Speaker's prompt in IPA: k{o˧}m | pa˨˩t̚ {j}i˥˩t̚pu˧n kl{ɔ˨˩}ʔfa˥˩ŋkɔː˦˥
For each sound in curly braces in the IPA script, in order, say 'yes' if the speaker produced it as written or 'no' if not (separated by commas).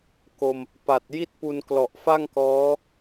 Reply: yes, yes, yes